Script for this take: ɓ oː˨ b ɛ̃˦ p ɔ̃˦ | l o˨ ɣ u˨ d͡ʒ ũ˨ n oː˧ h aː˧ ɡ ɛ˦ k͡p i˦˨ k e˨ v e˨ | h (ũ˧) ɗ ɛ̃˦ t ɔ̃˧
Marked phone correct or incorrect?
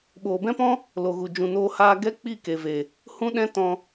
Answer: incorrect